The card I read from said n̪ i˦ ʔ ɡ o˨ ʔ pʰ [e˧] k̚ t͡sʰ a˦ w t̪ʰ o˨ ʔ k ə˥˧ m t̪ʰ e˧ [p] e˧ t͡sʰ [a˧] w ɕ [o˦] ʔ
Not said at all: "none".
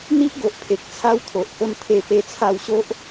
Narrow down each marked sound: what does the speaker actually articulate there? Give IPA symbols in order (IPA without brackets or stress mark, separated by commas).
e˨, p, a˧, o˦